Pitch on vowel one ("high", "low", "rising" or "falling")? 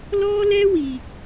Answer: high